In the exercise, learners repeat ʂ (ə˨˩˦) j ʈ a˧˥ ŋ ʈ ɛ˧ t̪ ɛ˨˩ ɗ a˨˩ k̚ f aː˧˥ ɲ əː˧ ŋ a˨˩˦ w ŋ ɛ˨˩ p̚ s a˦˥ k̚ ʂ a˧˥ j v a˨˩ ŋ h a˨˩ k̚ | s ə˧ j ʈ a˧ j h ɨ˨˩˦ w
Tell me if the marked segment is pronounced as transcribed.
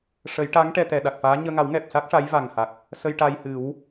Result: yes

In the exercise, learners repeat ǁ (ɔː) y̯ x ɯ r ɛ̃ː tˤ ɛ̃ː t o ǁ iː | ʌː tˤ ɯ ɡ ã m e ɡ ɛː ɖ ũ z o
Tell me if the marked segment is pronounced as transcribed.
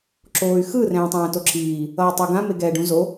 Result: no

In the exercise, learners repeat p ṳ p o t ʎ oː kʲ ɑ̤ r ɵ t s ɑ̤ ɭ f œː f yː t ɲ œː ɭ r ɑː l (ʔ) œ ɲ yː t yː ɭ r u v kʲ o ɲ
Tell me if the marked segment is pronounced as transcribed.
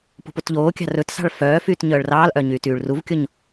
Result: yes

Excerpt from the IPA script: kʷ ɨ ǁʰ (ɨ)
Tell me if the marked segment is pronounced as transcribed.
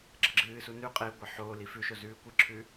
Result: no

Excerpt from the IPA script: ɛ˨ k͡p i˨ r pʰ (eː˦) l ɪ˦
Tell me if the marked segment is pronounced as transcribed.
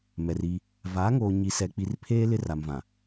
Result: yes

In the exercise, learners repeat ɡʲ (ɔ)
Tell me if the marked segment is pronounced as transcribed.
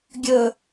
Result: no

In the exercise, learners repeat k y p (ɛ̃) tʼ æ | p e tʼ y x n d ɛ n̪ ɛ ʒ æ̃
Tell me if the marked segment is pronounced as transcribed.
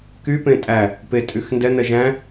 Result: no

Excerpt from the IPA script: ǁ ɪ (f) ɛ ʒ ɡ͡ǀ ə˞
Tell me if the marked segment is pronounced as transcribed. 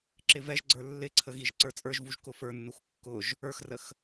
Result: no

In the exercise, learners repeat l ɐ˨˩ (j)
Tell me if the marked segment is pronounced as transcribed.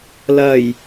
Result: yes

